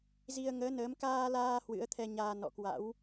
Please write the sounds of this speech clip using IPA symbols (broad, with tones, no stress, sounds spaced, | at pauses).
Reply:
z i˧ ə̯ ŋ əː˨˦ n əː˨˦ m k aː˧ l aː˧ h w ɨ̰˧˥ ə̯ t̪ʰ ɛ˧ ɲ aː˧ n ɔ̰˧˨ k w a̰˧˥ w